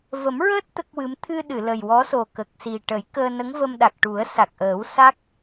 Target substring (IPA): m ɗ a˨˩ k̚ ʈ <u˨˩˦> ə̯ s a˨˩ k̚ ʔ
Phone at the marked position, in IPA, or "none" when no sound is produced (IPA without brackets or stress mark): u˨˩˦